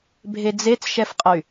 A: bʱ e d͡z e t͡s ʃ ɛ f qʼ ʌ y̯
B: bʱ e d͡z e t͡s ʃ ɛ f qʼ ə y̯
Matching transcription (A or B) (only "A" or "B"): B